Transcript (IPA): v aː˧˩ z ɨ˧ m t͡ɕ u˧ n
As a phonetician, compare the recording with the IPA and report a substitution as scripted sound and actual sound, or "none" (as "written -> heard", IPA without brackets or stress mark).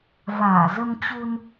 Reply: ɨ˧ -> ə˧